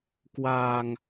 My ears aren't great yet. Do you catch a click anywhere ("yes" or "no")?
no